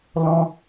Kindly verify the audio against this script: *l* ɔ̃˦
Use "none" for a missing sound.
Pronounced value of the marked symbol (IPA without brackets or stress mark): l